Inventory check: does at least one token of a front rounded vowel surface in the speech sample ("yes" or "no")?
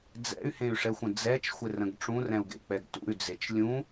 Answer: yes